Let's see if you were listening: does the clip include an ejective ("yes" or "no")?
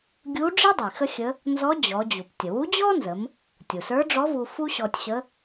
no